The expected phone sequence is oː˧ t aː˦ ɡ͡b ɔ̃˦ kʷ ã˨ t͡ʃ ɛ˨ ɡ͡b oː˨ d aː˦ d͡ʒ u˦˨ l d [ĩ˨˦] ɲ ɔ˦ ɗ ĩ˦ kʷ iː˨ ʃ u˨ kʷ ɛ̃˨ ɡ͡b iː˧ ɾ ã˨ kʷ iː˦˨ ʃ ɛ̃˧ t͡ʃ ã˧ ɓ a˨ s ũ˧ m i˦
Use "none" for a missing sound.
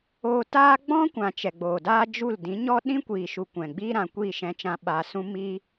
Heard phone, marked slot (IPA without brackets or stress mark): ĩ˨˦